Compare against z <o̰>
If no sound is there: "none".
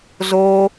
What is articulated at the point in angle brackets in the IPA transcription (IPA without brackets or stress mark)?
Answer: o